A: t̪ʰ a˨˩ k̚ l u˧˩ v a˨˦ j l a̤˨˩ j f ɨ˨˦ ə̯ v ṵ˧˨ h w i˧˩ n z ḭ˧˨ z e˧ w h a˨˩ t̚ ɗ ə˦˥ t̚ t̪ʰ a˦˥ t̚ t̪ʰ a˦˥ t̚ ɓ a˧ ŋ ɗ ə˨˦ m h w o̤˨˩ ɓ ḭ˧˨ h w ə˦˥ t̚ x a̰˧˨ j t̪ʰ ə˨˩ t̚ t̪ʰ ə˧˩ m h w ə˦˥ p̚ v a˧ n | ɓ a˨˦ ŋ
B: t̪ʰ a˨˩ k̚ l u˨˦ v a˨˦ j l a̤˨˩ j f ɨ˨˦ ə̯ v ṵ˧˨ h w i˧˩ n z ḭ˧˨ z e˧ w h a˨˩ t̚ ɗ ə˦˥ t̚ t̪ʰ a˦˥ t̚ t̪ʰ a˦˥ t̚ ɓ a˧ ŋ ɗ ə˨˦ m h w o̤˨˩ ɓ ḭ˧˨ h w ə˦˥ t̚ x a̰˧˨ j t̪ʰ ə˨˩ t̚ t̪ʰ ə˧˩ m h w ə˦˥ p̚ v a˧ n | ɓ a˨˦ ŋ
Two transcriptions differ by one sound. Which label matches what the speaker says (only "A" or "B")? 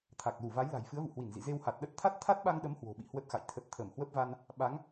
A